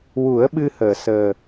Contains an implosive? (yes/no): yes